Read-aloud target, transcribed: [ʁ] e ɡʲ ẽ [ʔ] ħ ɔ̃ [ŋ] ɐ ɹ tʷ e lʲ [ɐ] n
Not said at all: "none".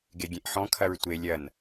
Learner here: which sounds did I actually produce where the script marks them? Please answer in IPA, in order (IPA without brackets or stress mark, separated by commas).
ɡ, ʔ, kʰ, ɐ